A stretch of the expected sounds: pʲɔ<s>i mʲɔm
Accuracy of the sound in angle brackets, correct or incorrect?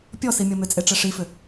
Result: correct